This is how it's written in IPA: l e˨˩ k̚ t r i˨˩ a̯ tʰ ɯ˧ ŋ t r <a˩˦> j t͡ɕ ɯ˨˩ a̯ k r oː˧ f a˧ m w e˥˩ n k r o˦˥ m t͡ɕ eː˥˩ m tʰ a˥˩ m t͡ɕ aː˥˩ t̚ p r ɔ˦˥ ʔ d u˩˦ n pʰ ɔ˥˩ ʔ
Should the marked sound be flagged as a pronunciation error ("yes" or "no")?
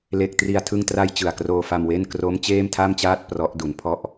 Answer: yes